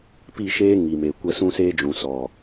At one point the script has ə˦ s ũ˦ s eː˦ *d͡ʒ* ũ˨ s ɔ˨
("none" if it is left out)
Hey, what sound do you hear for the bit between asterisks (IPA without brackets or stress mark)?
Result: d͡ʒ